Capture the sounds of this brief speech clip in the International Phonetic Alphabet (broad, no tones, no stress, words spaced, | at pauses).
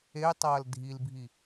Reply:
ejtˤɐːl dʱilbʱi